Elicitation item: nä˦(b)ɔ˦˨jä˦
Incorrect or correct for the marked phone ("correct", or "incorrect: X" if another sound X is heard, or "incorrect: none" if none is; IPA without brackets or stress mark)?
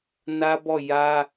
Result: correct